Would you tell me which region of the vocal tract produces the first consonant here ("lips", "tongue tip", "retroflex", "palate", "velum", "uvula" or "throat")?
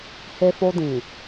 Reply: throat